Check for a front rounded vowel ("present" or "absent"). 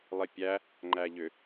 present